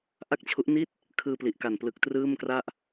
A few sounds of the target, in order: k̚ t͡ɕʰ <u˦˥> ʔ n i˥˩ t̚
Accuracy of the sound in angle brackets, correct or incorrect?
correct